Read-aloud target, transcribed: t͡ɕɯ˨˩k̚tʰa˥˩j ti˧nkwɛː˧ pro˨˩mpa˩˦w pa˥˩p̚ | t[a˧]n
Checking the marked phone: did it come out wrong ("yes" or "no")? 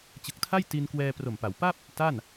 yes